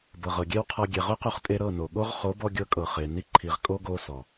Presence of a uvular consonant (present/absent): present